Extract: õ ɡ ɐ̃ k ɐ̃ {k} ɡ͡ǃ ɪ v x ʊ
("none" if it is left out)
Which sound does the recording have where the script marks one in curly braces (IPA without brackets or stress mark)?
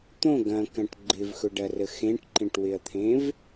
ʈ